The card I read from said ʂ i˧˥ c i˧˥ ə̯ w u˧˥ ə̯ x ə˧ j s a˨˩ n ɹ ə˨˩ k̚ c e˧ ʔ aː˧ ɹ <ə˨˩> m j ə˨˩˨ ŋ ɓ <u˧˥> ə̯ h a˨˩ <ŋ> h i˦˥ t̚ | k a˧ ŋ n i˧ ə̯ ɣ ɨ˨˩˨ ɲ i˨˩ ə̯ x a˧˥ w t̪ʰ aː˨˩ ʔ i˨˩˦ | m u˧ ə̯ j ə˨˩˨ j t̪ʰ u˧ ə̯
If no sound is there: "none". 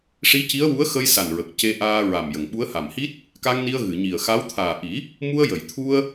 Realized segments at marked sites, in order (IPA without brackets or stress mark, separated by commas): a˨˩, u˧˥, m